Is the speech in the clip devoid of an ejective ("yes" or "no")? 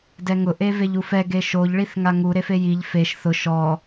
yes